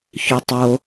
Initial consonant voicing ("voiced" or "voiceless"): voiceless